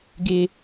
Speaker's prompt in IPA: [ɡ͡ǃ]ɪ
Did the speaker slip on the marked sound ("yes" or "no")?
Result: yes